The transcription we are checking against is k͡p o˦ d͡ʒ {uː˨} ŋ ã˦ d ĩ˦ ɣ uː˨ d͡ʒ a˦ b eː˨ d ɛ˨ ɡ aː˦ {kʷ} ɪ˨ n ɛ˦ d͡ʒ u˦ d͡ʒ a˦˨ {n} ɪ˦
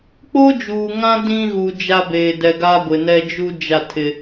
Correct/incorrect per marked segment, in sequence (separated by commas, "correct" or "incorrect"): correct, incorrect, incorrect